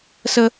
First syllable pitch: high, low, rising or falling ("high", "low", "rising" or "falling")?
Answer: high